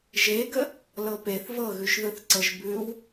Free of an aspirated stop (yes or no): yes